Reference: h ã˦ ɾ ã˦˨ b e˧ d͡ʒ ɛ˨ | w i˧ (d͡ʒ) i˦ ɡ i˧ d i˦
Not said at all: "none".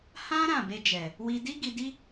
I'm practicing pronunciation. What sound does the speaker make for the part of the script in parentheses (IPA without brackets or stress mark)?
d